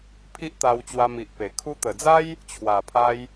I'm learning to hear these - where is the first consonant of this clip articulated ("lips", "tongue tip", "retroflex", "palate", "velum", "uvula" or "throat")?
lips